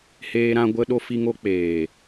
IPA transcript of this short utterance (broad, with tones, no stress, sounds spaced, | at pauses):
h eː˧ ɾ ã˧ ɡʷ ə˧ ɗ o˧ f i˧ ŋ o˧ k͡p eː˨